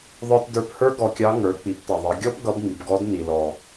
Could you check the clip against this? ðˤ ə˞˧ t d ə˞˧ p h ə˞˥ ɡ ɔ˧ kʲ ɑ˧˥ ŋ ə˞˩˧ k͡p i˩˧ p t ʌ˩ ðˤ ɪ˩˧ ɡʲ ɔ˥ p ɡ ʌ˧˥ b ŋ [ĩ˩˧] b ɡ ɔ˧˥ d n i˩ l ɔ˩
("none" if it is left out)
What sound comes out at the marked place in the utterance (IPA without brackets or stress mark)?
i˩˧